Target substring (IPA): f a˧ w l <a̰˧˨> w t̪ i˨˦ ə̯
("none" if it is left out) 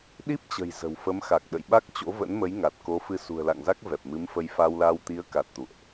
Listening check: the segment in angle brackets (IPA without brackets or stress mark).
a˧